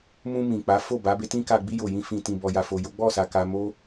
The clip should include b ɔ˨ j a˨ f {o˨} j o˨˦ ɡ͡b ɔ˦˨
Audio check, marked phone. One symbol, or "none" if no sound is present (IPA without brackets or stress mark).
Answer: o˨